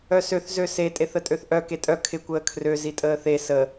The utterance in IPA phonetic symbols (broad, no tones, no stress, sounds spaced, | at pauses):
œ s ø θ z ø s e tʼ e θ ə tʼ ø θ ʔ œ k e tʼ œ kʰ ɪ kʷ əː kʰ r ø z i tʼ əː θ e s ə